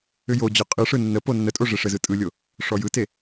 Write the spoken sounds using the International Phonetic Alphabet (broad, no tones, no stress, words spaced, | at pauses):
ʏjod͡ʑɔ qʼɯʂɯ nːə ponːətʼo ʐeʂɘzɯ tʼɯlʲo | ʂɔjɯte